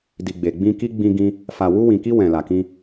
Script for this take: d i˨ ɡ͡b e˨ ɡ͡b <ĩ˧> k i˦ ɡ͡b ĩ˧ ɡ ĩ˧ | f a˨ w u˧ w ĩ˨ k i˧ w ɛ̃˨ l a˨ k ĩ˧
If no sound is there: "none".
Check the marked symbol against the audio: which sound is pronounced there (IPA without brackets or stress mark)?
ĩ˧